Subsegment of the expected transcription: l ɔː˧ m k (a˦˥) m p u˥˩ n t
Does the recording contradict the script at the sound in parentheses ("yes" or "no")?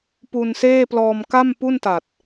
yes